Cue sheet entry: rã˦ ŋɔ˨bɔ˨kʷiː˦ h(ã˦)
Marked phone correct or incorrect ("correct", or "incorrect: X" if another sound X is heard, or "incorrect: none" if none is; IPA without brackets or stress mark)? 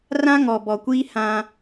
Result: correct